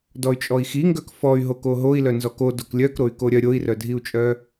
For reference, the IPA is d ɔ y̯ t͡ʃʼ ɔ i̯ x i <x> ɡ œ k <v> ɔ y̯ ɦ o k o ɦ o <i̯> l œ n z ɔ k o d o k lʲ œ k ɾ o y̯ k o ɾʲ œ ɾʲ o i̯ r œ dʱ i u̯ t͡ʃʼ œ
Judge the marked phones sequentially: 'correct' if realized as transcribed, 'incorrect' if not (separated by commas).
incorrect, incorrect, correct